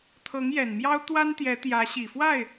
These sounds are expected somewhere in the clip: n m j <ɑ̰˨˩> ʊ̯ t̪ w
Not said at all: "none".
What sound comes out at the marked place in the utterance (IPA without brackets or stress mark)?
ɑ˥